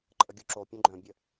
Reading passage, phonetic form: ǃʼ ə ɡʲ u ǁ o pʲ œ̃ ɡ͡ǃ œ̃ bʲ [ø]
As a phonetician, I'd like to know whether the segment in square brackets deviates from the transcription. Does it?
yes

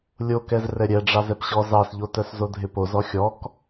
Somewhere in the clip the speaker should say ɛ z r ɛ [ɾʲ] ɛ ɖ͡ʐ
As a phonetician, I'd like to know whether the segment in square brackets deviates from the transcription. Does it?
no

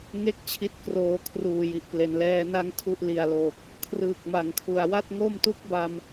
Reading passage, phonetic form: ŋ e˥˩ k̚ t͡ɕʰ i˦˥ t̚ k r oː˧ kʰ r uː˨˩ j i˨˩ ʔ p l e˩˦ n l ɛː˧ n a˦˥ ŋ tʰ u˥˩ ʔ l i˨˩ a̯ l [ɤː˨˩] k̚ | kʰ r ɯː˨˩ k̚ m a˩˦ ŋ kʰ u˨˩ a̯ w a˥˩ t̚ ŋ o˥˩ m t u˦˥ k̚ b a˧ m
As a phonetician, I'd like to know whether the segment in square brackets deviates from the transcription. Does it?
yes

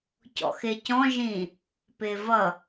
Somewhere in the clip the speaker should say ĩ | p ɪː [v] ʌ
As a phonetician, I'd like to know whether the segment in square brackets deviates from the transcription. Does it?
no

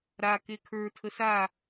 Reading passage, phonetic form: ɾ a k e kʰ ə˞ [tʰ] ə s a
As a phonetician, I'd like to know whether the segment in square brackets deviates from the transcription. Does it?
no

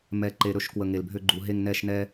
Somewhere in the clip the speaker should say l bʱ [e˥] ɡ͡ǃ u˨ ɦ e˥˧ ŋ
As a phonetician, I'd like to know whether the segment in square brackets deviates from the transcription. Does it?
yes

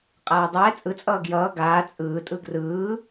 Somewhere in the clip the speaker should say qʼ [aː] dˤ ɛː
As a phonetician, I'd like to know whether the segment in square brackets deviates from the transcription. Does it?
no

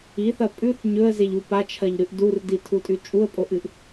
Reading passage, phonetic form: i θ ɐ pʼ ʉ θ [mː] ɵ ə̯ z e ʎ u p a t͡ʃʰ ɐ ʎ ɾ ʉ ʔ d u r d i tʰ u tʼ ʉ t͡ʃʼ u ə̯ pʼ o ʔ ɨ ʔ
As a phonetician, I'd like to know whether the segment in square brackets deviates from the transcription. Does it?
yes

